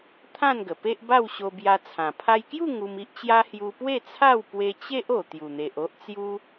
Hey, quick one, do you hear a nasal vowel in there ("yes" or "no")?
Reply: yes